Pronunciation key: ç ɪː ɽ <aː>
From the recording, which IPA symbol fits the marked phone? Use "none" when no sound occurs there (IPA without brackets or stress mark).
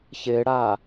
aː